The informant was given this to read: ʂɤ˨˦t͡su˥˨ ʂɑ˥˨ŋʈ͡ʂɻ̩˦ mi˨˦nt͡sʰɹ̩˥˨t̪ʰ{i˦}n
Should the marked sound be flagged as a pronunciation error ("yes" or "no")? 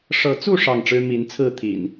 yes